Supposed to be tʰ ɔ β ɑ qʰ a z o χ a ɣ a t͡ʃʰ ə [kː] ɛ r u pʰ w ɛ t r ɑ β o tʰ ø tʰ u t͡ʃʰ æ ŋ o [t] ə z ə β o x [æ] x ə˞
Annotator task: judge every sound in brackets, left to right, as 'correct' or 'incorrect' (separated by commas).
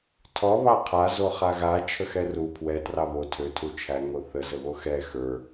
incorrect, incorrect, incorrect